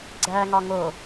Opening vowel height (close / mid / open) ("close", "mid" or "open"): open